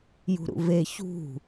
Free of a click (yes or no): yes